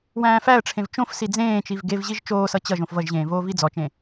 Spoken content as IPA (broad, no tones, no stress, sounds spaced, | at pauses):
w æ̃ː f æ ə̯ ʈ͡ʂʰ ẽ v t͡ʃ õ f s i d͡z ẽː t͡ʃ i v ɡ e v ʑ i ʒ t͡ʃ oː s ʌ t͡ɕ ʌ ʒ õ f v ʌ ʒ ʑ ẽː v oː v i d͡z ɔ t͡ʃ ẽ